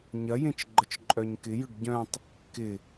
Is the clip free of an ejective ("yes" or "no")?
no